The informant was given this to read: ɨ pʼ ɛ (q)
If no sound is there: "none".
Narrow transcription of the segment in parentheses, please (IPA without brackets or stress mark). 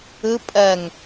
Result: ŋ